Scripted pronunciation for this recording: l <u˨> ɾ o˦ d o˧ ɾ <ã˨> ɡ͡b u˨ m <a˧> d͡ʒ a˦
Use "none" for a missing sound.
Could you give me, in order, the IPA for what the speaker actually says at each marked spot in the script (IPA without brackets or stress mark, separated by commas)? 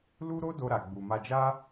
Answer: u˦, a˨, a˧